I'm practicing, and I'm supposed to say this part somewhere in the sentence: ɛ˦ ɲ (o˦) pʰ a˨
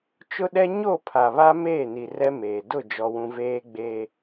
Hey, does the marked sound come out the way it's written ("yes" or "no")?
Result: no